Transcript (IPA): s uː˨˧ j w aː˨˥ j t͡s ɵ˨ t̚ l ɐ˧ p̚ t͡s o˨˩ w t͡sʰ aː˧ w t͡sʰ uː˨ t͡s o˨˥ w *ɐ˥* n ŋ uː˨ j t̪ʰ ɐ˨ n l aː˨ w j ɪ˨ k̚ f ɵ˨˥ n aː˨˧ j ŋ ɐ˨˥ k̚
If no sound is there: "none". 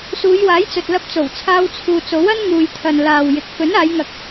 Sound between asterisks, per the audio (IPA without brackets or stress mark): ɐ˥